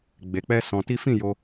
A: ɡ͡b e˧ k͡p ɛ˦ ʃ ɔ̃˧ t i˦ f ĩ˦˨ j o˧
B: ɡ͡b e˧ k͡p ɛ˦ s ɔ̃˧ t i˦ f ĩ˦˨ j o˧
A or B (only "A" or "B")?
B